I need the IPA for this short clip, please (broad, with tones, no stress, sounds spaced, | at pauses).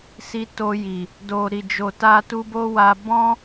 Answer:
s i˧ t o˧ j i˨ | d o˨ ɾ i˨ d͡ʒ o˨ t a˧ t u˧ b o˦ w a˧ b ɔ̃˦